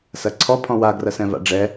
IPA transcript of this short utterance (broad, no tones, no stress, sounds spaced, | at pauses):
s ɐ ǀʰ ɔ pʰ ɔ̃ w a ɡ r ɐ s ɛ̃ v a̰ ɖ͡ʐ ɛ